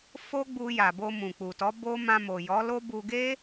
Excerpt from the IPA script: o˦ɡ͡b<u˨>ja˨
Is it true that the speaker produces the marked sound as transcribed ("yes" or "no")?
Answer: no